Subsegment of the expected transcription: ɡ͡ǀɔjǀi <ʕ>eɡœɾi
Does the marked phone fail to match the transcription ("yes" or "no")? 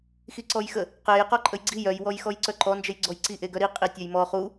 yes